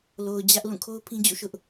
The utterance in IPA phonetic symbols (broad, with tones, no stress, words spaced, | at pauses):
lo˨ʊ̯d͡ʑä˦ʔ lũ˦˨kʰo˦ʊ̯pʰĩ˦ d͡ʑṵ˦˨ʃʊ˦ʔ